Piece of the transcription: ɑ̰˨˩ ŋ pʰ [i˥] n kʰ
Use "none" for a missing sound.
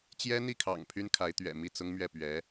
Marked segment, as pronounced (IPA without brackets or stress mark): y˥